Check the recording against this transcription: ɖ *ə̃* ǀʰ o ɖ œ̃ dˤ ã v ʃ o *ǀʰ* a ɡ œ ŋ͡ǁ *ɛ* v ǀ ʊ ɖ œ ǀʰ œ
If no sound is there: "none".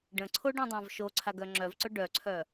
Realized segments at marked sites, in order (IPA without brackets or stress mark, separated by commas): ə̃, ǀʰ, œ